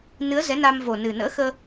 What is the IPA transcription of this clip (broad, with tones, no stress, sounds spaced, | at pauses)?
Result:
n ɨ˨˦ ə̯ z ɛ˨˦ n a˧ m v o˨˩ n ɨ˨˩ n ə̰ː˧˥ x əː˧